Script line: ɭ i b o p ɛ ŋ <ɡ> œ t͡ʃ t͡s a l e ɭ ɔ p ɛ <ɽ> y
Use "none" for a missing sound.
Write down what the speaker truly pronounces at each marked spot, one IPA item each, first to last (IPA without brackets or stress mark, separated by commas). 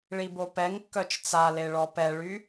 kː, ɭ